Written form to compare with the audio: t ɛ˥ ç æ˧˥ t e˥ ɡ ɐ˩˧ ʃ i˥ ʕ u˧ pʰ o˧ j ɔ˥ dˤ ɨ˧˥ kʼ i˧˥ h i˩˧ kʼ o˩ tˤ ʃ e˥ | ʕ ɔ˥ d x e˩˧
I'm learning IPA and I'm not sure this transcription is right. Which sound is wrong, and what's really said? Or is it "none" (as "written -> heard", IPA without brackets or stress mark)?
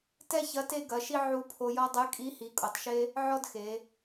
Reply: æ˧˥ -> ɐ˧˥